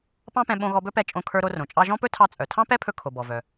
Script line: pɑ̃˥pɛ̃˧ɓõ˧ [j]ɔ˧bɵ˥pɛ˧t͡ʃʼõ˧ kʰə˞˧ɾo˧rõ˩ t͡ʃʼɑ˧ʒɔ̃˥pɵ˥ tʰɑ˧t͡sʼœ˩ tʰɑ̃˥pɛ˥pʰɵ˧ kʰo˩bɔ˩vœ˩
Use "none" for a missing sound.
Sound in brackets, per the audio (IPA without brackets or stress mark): ɣ